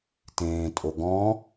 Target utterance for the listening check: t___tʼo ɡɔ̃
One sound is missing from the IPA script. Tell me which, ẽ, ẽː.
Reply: ẽː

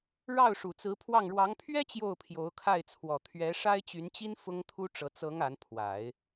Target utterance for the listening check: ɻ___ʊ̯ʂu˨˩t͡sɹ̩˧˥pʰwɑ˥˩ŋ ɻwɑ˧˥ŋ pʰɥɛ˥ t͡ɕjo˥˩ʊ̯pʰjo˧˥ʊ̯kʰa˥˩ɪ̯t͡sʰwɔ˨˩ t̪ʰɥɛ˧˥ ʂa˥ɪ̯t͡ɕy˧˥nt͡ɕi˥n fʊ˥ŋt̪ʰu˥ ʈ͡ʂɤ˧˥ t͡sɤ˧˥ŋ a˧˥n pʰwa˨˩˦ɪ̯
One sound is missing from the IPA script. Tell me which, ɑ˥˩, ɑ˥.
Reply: ɑ˥˩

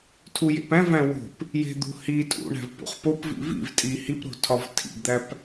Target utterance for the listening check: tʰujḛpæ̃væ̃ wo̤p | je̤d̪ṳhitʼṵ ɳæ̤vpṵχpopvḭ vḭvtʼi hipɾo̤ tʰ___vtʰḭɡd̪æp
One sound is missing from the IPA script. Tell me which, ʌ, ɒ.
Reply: ɒ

